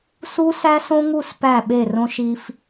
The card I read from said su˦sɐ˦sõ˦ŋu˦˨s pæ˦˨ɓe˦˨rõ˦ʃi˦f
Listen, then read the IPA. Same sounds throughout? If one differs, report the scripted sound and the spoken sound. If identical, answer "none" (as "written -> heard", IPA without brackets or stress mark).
ɐ˦ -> æ˦